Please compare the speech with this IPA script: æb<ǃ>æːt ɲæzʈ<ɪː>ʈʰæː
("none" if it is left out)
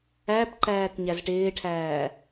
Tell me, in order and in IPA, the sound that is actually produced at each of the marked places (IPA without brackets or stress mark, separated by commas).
ǃ, ɪː